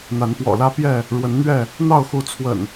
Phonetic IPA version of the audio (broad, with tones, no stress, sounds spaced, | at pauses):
n̪ a˨˦ n p w ɔ̰˨˩ l ä˦ p j ɛ˥˨ | ɻ w ə˨˦ n n̪ ɥ ɛ˥˨ | n̪ ɑ˥˨ ʊ̯ x u˨˦ t͡sʰ w ə̰˨˩ n